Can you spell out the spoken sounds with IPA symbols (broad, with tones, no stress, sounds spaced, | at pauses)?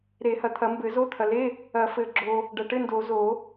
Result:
ɾ e˨˩˦ h ɐ˨ t̪ʰ ɐ˨˩˦ m b ɘ˨˩˦ z o˧˥˧ t̪ʰ ɐ˨ l e˧˥˧ | ɐ˨˩˦ f ɘ˨ ɡ͡ǁ o˨ | ɖ ɐ˨ ʈ ɘ˧˥˧ n d o˨˩˦ z o˨˩˦